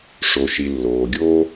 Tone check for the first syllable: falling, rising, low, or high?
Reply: low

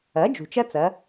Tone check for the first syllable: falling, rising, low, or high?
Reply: rising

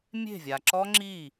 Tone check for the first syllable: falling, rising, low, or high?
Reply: falling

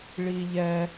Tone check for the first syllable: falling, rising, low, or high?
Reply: high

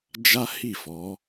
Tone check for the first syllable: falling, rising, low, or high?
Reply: high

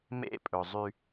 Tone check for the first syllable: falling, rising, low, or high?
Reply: falling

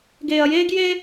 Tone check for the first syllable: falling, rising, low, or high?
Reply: low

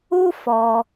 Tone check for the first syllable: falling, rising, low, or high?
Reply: high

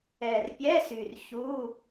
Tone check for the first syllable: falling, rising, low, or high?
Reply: low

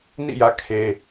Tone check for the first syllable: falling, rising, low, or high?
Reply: falling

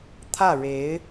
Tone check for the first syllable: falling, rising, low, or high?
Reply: falling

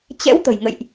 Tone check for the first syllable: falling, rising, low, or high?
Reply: rising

